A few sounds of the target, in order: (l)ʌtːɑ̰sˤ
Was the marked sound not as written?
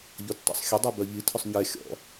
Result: yes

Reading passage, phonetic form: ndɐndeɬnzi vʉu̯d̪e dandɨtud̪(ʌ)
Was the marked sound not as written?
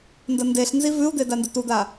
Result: yes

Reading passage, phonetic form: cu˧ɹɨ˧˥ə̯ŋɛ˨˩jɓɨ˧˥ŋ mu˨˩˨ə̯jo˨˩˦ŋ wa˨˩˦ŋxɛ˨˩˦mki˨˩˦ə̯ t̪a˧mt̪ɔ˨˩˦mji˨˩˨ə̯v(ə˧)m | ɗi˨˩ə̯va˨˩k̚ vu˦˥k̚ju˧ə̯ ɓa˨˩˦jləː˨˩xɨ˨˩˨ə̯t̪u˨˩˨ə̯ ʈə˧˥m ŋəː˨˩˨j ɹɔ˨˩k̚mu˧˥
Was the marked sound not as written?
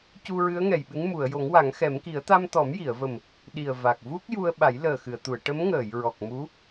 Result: yes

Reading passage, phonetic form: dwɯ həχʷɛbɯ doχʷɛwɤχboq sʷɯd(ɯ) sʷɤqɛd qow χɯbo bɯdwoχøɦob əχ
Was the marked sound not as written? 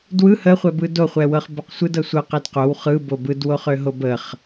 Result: yes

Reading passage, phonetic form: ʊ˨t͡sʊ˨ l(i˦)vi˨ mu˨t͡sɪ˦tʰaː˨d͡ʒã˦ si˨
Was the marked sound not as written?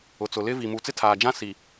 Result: yes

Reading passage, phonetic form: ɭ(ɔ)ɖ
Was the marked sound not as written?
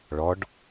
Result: no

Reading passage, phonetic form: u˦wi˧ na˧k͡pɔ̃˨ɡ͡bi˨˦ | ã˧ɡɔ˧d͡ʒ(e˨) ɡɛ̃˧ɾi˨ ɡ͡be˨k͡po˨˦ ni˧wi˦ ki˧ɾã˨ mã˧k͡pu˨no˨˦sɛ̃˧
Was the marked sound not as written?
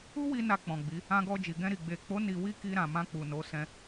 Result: yes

